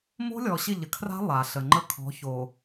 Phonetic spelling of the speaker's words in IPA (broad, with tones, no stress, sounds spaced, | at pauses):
m o̤˦ lʲ ɔ˨ ɕ ɪ˦˨ ʎ ə˨ kʰ r a̤˦ lˠ a˨ ɬ ə˨ ŋ͡ǃ ə˦ kʰ ɔ̤˨˦ ç o˨